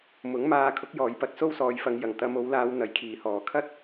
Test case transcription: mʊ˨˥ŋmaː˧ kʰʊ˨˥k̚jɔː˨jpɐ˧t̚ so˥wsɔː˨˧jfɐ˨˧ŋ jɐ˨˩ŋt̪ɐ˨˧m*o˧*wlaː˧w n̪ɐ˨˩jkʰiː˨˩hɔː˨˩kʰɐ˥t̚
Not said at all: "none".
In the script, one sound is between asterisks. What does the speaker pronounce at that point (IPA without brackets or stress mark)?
o˨˧